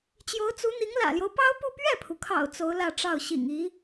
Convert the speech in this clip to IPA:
t͡ɕ j o˧˥ ʊ̯ t͡s u˧˥ n̪ i˧˥ ŋ l ä̰˨˩ l j o˦ ʊ̯ p ɑ˥ ʊ̯ p u˥˧ p ɥ ɛ˥˩ pʰ u˩ kʰ ɑ̰˨˩ ʊ̯ t͡s o˧˥ ʊ̯ l ä˥˧ ʈ͡ʂ ɑ˥˩ ʊ̯ ɕ ḭ˨˩ ŋ i˧˥

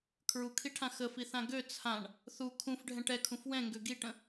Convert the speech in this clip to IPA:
kʰ ɹ u kʰ i ʈʰ ã x ə f i θ ã ɡ ø t͡sʰ ã ɳ | θ u kʰ ũ f ɖʱ ɛ̃ ʈ ɛ kʰ ũ f w ɛ̃ ŋ ɡ ø ɡ i ʈ ə̃

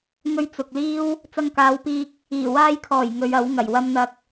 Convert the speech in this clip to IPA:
ŋ ɵ˧ ɥ t͡s ʊ˨ k̚ l iː˥ w | t͡s ɐ˧ ŋ k aː˨˧ w p iː˧ k̚ | iː˨˩ w aː˧ j kʰ ɔː˨˩ j ŋ ɵ˨˧ ɥ ɐ˨˥ w ŋ ɐ˨˩ j w ɐ˧ m n̪ ɐ˧ k̚

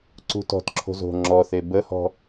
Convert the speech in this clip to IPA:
ǀ ṳ t ɔ̤ t ǁʰ o̤ z o̤ ŋ͡ǁ ɔ θ e b ə h ɔ̤

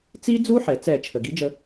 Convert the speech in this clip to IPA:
t͡s i˦˥ d͡z u˦˥ ħ ɛ˩ t͡s ɛ˧˩˧ t͡ʃʰ ə˩ ɡ i˨˥ d͡ʒ ə˧

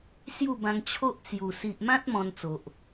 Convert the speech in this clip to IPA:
s j u˥˧ b ã˧ ŋ t͡ɕʰ o˦ ʔ t͡s j u˨˩ s i˨ ʔ m ã˦ t̚ m ɔ̃˧ n t͡s o˨ ʔ

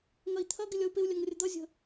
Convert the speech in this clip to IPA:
ŋ ɐ i̯ t̪ʰ ɐ ɡ ɪ lʲ ʌ u̯ p ɪ u̯ lʲ ɐ ŋ rʲ ə d̪ ʌ zʲ ə̤

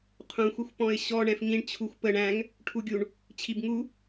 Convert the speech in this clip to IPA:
qʰ ũ xʷ ə xʷ p ɔ̃ ɪ̯ ɕ ɔ ɳ ɛ̃ f ŋ ĩ ɳ t͡ɕʰ u xʷ p ə ɳ æ̃ ŋ | ʈʰ u ɡʲ u ɳ | t͡ɕʰ i b ŋ u

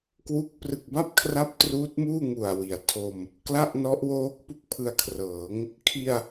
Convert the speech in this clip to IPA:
k w u˦˥ k̚ p r ɯ˨˩ k̚ b a˥˩ p̚ kʰ r a˦˥ p̚ t r uː˦˥ t̚ m uː˥˩ ŋ u˨˩ a̯ w i˩˦ a̯ tʰ o˧ m | k l a˥˩ ʔ n ɔ˦˥ ʔ w oː˦˥ k̚ p u˦˥ k̚ pʰ ɯ˧ a̯ kʰ r ɤː˩˦ ŋ | kʰ i˧ a̯

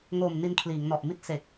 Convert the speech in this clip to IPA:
ŋ oː˨˩ m n i˧ n kʰ l iː˩˦ ŋ n ɔ˨˩ ʔ m i˥˩ t̚ s e˨˩ k̚

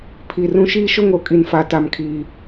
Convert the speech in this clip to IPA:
pʰ i˨ r ũ˦ ʃ iː˦ ʃ ʊ˦ ŋ o˨ kʼ i˨ n f a˨ t a˨ m kʰ iː˨

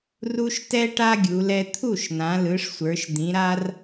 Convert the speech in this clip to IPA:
r u˦ ʃ t ɛ˦ ʈ a˦ ɡʲ u˩˧ l ɛ˦ t̪ʰ u˥˩ ʃ n ã˩˧ l ɯ˩˧ ʂ sʷ ə˞˩˧ ʃ d̪ ĩ˩˧ ɾ a˦ r

